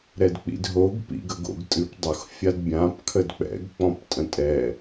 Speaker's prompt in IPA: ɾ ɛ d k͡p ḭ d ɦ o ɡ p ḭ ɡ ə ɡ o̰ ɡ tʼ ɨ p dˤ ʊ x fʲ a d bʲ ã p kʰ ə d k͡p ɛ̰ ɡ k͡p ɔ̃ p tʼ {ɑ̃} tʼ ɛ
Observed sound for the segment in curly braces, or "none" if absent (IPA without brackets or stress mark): ə̃